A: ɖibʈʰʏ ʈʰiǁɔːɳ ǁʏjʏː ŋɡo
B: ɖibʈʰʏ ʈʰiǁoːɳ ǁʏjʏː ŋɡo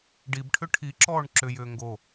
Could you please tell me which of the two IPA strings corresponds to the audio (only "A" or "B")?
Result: A